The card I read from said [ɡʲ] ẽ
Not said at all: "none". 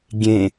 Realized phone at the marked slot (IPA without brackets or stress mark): ɡʲ